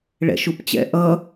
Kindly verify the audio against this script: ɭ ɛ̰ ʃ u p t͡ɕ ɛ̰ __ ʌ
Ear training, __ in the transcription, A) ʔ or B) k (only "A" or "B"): A